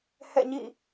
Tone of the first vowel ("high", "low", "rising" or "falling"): falling